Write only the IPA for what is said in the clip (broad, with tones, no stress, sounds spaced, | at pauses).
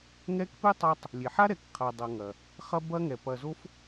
ŋ ɛ˦ k p e˥ tˤ a˦ tˤ | lʲ e˩ ħ a˥ ɾ ɛ˨ k qʰ a˨ dˤ ɐ˨ ŋ ɐ˩ | χ ɐ˦ b ɐ˦ ŋ ɛ˩ p ɐ˨ z o˥ f